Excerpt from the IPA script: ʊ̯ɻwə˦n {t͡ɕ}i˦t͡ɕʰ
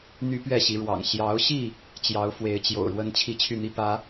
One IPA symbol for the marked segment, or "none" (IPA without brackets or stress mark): t͡ɕʰ